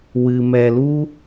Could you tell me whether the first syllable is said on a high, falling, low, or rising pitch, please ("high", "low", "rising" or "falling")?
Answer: low